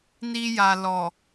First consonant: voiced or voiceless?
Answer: voiced